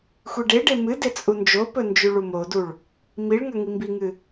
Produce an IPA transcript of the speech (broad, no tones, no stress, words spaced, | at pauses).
xʷiɖeɖe mɨde t͡sʼund͡ʒopɵ nd͡ʒʉɭumoduɭ | miɭŋɐ ŋimbiŋɨ